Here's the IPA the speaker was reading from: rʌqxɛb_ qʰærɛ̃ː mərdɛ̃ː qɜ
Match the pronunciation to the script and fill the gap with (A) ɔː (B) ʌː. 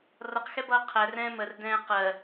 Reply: B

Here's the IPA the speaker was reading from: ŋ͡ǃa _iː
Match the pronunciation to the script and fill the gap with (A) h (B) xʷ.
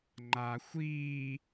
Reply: B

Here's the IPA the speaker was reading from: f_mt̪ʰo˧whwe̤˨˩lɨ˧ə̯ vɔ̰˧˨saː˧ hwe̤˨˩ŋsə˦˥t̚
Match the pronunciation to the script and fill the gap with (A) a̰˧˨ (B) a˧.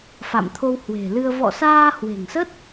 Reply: A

